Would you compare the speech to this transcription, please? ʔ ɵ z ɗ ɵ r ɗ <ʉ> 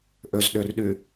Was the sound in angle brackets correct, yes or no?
yes